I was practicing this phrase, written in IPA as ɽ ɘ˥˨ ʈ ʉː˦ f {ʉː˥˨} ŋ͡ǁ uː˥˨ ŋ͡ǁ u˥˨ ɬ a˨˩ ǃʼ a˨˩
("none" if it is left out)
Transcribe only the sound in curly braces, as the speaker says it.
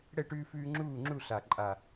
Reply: ʉː˦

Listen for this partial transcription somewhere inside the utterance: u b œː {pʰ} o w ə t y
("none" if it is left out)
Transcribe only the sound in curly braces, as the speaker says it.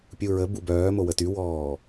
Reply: m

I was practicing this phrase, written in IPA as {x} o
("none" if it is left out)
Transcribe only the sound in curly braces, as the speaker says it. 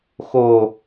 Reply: x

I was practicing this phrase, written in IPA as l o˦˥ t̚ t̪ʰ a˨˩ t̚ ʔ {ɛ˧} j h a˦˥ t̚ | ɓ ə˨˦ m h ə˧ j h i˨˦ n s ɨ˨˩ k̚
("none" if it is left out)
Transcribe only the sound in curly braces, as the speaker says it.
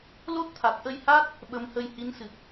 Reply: ə˧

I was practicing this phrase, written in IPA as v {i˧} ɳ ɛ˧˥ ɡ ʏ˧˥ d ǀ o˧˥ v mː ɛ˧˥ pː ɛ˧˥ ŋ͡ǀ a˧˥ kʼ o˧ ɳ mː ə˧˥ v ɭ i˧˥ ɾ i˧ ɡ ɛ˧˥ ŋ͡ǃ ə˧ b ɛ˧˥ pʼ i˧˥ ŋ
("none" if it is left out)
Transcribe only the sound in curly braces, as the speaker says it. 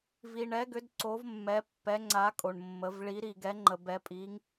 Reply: i˧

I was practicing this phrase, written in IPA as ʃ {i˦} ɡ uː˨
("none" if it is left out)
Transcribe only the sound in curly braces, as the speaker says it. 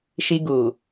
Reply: i˦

